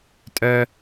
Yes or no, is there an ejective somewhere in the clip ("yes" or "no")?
yes